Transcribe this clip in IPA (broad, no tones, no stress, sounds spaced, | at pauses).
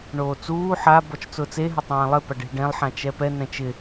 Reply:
ɳ oː t͡s uː ħ a b ɔ t͡ʃ t͡s ʊː t͡s e ɦ ɪ tˤ ãː lˠ ɪ p a ɖ e̤ ɖ ɛ̃ lˠ ħ ã t͡ʃ ɛ p ɛ n ɛ̃ t͡ʃ ɪ